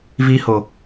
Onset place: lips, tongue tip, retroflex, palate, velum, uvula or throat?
lips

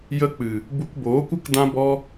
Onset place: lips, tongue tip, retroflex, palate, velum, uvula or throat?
palate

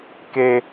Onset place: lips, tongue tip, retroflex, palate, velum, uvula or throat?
velum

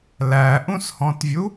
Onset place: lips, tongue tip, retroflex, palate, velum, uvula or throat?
tongue tip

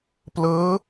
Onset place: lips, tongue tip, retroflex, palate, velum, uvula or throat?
lips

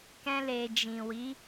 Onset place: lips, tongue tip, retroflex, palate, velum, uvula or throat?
velum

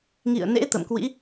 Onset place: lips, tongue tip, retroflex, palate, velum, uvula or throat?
velum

